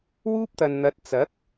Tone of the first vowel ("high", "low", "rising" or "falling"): high